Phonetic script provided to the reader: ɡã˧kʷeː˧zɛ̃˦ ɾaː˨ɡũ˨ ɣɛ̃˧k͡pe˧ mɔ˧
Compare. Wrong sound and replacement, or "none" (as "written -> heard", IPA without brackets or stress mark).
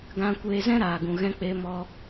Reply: none